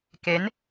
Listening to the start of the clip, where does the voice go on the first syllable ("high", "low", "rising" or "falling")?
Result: rising